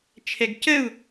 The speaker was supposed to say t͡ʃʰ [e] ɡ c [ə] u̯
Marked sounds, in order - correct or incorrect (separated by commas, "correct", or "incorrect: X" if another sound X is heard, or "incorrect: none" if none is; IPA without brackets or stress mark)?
incorrect: ɛ, correct